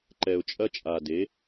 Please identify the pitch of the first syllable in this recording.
low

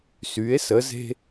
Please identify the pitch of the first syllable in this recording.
rising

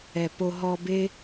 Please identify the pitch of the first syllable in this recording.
low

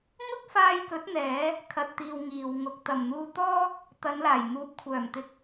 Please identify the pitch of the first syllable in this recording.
high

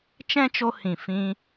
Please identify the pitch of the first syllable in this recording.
high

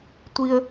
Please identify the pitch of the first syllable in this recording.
high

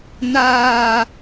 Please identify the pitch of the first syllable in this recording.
high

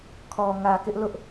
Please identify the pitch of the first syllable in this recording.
low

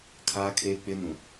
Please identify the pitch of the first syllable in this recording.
high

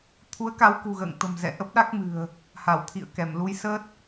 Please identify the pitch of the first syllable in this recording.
rising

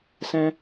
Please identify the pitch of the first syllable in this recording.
high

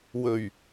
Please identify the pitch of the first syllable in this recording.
low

